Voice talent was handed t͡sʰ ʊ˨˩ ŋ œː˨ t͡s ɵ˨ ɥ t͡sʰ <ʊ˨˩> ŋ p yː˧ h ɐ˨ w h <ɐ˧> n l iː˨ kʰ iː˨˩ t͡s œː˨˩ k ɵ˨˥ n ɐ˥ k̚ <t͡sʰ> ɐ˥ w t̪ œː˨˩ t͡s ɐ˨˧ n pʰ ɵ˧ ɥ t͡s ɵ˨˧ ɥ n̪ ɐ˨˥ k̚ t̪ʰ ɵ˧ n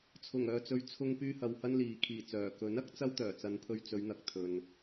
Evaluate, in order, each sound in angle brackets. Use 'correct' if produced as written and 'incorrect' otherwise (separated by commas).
incorrect, correct, incorrect